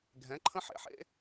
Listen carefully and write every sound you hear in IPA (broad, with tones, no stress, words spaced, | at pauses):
ɡʱɛ̃˨˦ǃʰə̃˦ ħḛ˨ħḛ˦